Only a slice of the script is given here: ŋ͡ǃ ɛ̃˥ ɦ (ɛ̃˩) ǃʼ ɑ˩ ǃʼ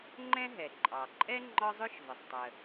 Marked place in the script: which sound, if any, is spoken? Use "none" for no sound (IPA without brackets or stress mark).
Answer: ɛ˩